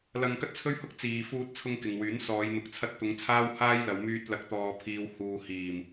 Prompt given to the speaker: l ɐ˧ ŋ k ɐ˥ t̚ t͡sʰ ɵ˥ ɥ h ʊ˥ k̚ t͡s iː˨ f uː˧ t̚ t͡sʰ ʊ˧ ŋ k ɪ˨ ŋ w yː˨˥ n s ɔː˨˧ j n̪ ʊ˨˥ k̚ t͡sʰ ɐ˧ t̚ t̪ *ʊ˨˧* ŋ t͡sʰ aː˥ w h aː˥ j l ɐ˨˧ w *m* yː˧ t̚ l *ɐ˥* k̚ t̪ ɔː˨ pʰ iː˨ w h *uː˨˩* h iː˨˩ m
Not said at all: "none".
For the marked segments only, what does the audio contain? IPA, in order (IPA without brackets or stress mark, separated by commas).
ʊ˨˧, m, ɐ˨˥, uː˨